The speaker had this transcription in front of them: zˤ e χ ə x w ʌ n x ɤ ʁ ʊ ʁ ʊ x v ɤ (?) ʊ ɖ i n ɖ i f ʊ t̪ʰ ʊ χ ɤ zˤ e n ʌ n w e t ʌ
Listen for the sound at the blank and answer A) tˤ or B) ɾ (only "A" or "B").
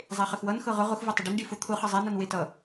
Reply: A